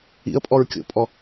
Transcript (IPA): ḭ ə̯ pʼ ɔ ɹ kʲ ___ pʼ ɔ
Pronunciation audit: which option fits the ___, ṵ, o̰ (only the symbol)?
o̰